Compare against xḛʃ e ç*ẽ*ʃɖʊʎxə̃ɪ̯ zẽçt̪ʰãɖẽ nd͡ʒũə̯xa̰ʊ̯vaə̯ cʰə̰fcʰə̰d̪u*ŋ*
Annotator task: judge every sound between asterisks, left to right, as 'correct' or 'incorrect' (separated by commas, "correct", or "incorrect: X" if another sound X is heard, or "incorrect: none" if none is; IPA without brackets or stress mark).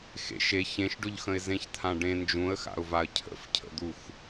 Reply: correct, incorrect: x